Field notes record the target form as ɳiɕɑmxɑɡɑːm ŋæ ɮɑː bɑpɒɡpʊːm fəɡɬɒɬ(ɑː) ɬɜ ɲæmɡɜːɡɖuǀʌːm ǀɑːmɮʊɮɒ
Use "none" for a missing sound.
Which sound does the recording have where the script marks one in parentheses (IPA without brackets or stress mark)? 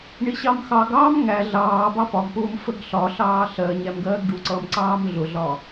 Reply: ɑː